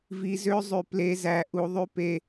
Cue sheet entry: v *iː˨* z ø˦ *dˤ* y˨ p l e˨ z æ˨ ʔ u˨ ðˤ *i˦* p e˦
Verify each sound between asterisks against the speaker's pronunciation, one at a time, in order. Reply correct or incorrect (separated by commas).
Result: incorrect, incorrect, incorrect